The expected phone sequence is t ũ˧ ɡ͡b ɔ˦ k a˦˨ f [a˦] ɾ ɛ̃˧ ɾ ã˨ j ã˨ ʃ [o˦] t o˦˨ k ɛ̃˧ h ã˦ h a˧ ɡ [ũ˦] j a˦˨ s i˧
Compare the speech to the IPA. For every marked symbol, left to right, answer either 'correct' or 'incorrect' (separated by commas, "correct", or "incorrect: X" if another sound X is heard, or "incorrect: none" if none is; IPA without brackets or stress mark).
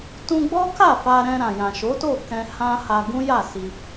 incorrect: a˧, incorrect: o˨˦, correct